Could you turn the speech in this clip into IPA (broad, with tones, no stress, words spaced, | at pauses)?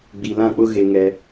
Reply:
ɡ͡bi˨lã˦˨k͡pʊ˦ ɣe˦ŋɛ˦